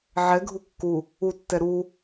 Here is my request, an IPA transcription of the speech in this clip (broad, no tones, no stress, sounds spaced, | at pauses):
ʕ ɛ ɡʱ u kː u | u tː ɛ ɾ u